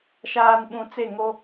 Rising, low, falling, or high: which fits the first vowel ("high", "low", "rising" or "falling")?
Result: low